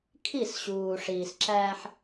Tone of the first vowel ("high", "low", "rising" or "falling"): falling